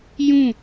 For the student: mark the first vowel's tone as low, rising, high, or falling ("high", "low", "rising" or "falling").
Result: falling